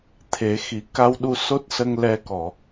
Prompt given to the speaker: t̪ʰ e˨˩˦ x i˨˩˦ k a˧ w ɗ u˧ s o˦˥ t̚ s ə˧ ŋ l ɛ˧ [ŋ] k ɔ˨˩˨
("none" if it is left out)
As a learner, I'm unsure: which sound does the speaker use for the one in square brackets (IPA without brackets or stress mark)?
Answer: none